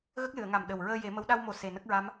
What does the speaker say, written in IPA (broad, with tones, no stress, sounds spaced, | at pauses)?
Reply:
ɣ ə˦˥ k̚ l ɨ˨˩˨ ə̯ ŋ a˨˩ m ɗ ə˨˩ w ɹ əː˧ j e˨˩˦ m ə˧˥ w ɗ a˧ w m o˨˩ s e˨˩ n ə˦˥ k̚ ɹ a˧˥ m